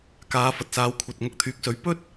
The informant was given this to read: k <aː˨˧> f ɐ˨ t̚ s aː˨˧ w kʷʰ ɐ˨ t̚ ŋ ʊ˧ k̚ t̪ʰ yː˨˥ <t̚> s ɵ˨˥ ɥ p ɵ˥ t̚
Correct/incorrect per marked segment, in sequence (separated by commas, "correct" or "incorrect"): correct, incorrect